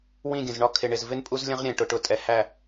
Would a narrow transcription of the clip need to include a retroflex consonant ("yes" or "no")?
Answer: yes